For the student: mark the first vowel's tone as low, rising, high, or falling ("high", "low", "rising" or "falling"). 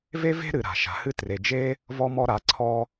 high